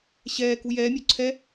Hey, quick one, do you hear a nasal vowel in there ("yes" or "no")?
no